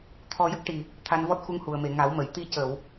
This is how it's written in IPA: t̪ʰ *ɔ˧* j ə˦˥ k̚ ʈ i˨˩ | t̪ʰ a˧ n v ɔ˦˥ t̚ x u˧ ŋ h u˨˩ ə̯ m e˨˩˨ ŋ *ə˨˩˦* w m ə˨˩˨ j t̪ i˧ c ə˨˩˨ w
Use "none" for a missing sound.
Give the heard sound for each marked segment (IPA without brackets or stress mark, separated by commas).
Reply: ɔ˧, a˨˩˦